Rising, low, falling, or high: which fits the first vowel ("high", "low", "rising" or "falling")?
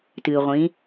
low